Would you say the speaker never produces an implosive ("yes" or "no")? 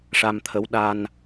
no